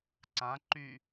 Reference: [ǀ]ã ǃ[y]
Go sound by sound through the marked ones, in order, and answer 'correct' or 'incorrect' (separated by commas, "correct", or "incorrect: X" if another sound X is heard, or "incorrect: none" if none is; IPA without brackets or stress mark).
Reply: correct, correct